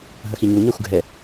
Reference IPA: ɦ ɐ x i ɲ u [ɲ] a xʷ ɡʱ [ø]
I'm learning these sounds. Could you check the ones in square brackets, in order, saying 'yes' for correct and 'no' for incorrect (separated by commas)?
yes, no